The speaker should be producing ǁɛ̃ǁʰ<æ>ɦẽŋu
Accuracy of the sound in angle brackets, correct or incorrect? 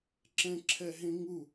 incorrect